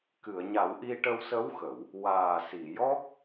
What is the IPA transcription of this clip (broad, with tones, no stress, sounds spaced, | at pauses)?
k ɨ˨˩˨ ə̯ ɲ a˨˩˦ w ʔ i˧ ʈ ə˧ w s ə˧˥ w x ə˨˩˨ w | w aː˨˩ s i˨˩˨ j ɔ˦˥ k̚